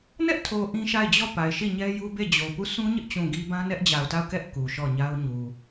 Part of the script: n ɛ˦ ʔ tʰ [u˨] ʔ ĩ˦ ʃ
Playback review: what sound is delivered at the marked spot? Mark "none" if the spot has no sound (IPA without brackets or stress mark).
o˨